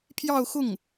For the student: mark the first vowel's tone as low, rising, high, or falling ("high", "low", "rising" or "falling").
falling